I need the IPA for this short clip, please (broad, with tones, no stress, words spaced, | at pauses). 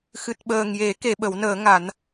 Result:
xɨ˨˩t̚ɓəː˨˩ŋ je˨˩˦ke˨˩˨ ɓə˨˩˦wnəː˨˩˦ŋa˨˩˦n